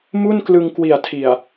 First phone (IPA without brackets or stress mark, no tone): m